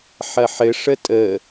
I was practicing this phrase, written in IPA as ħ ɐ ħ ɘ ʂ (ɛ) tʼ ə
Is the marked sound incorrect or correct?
incorrect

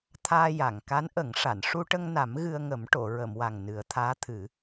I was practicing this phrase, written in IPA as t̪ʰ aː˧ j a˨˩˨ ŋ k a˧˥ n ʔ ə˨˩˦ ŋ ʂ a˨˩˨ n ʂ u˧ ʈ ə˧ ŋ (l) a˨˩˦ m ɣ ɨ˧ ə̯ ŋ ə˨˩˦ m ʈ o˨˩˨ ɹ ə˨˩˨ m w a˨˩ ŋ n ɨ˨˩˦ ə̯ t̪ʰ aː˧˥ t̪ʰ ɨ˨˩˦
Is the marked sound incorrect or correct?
incorrect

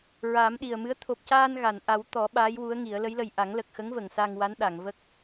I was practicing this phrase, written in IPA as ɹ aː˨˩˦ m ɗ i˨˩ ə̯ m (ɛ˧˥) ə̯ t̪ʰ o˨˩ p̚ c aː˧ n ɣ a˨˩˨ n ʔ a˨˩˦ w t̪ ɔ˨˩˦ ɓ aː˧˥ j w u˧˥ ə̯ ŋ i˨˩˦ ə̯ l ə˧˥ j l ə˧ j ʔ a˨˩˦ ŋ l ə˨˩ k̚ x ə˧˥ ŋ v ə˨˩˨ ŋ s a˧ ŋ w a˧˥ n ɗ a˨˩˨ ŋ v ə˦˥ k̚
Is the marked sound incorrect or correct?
incorrect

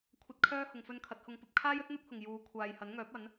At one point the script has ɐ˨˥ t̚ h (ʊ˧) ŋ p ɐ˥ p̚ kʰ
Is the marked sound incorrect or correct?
correct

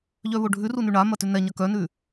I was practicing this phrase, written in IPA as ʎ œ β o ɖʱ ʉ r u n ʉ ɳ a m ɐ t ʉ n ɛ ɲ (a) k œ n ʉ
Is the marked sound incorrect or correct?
incorrect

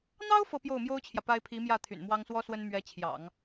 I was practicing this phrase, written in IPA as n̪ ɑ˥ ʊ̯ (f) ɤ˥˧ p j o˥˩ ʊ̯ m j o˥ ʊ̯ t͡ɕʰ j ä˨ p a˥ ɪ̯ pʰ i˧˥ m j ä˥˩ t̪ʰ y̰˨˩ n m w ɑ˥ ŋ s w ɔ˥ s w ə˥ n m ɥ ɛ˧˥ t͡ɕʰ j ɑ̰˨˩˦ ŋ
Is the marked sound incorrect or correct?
correct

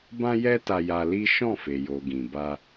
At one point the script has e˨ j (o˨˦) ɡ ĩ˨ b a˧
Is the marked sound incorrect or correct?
incorrect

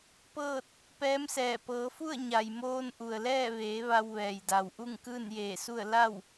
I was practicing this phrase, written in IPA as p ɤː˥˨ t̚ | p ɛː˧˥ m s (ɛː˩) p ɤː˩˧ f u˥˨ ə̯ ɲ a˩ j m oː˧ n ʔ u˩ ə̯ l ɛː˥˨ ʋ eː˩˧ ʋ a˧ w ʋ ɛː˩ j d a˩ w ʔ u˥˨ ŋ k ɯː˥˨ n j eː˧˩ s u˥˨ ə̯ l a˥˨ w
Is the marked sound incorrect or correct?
incorrect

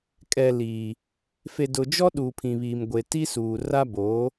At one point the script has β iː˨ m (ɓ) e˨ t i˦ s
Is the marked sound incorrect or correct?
incorrect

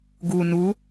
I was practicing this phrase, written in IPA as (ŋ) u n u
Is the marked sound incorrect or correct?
incorrect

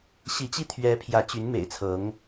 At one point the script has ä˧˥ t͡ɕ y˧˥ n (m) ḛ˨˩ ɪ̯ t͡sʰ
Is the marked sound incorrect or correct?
correct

